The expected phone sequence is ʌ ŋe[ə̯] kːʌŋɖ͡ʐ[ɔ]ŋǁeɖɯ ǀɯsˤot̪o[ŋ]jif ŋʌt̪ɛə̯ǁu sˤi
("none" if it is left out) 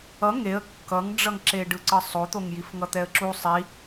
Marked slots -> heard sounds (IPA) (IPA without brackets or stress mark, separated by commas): ə̯, ʌ, ŋ